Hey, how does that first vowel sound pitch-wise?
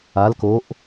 rising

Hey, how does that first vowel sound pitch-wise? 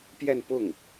falling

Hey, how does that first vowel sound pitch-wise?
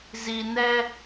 low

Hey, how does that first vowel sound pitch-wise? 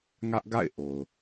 high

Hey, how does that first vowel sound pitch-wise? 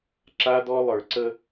high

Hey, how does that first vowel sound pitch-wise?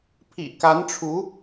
low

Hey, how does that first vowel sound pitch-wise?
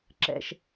low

